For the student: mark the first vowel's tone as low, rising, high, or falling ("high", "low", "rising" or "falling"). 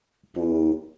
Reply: low